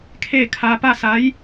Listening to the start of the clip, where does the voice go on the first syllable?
falling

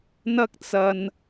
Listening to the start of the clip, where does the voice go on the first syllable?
high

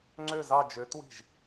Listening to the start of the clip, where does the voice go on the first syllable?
falling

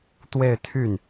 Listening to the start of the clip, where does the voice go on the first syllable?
falling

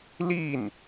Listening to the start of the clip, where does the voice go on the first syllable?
falling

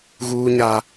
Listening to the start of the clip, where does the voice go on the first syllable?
high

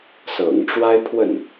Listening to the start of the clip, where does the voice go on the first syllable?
low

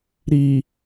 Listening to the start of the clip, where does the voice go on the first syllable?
low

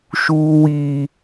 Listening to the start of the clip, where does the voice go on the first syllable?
high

